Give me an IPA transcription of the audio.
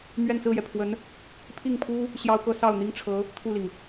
m ɥ ɛ˥˧ n t͡s ɹ̩˥˩ j ɛ˩ pʰ w ə˧˥ n | pʰ i˥˩ ŋ pʰ u˥ | ɕ j ɑ˥ ʊ̯ k ɤ˥ s ɑ˥˩ ʊ̯ n̪ i˥ ŋ ʈ͡ʂʰ ɤ˧˥ | t̪ʰ u˥˩ l i˩ ŋ

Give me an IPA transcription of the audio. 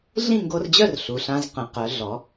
ɮ ĩ˥˨ ŋ ɡ o˧ r d͡ʑ œ˥˨ r ɬ u˩ ɬ ã˧ z q ə̃˩˧ q œ˩˧ ɮ ɔ˩˧

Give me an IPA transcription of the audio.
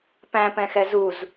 p æ̃ p ɛ̃ x ɛ z u z

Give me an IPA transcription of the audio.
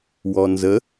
w ɔ n z ə

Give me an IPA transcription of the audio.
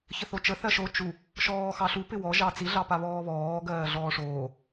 ç ə θ o t͡ʃ ə θ ɜ ʃ o t͡ʃ u | ʃ ɔː x ɑ ɬ u p ɪ w ɔ ʒ ɑ t͡s i ɮ ɑ p a β ɔː β ɔː ɡ ɜː ɮ ɔː ʂ oː

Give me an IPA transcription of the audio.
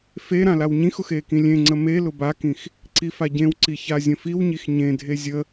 f e ɾ ã l a w ɲ ĩ x ʊ x e k ĩ lʲ ẽ ŋ͡ǀ ə m e l ʊ b a k ĩ x | ǀ i f a ɟ ẽ w ǀ i ç a zʲ ə̃ f i w ɲ i x ɲ ẽ dʱ e zʲ ə

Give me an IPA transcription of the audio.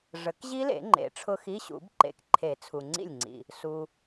ʐ ə˨˩˦ k ʑ i˦˥ l ḛ˨˩˦ ŋ͡ǃ ḛ˨˩˦ ʈ͡ʂʰ ʊ˦˥ x i˧˥˧ ɕ ṵ˨˩˦ b ǃ ḛ˨ k ǃʰ e˨˩˦ t͡sʰ u˨ ŋ͡ǀ ḭ˥˩ lʲ ŋ͡ǀ ḭ˨ | s u˨

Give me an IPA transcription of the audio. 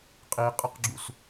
qʼ i qʼ ɨ q ɡ͡ǁ ṵ s

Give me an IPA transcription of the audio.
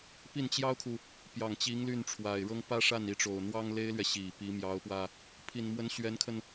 p i˥˩ n t͡ɕ j ɑ˥ ʊ̯ kʰ u˨ | p j ɑ˨˩ ŋ t͡ɕ i˧˥ ŋ l y˥˩ n ʈ͡ʂʰ w a˨˩ ɪ̯ ɻ ɤ˥ ŋ p ä˥ ʂ a˥˩ n i˧˥ ʈ͡ʂ o˨˩ ʊ̯ n̪ w ɑ˥ ŋ l e˥ ɪ̯ l ɥ ɛ˨ ɕ i˨˩ p i˧˥ m j ɑ˧˥ ʊ̯ p w ä˧ | pʰ i˨˩ n m w ə˧˥ n ɕ ɥ ɛ˧˥ n kʰ ə˧ n

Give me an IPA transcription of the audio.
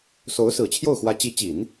s o˧˥ ʊ̯ s ɹ̩˨˩ t͡ɕʰ j o˥˩ ʊ̯ x w ä˧˥ t͡ɕ i˧˥ t͡ɕ i˨˩˦ n

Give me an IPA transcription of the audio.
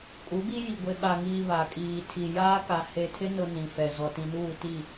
kʼ u˨˦ ɡ i˦ j i˨ ɡʷ e˨ ɓ a˨ ŋ iː˨ β a˨ kʼ iː˨ tʰ i˨ j aː˦ k a˨ h e˨ tʰ ɪ˦ n ʊ˦ n ĩ˨ f ɛ˨ z ɔ˨ t ĩ˨ n uː˦˨ t i˦˨

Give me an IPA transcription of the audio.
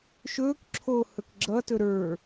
ʃ ɵː k ǁʰ oː h ɵ k ɡ͡ǁ ʌ t ɵ ɾ ə˞

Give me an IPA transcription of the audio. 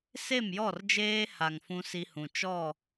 s e˦˨ m j ɔ˦˨ r d͡ʒ eː˦ h a˨ ŋ f ũ˦ s i˦ h ũ˨ t͡ʃ ɔ˦˨

